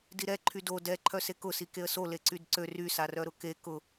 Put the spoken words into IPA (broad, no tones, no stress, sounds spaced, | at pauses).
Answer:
d i ɾ ɛ ǃʰ y d o d ɛ ǃʰ œ s e k ʊ s i k e ə̯ s o l e ǀ y d ǀ ø r y s a r œ ɾ ʊ k e k ʊ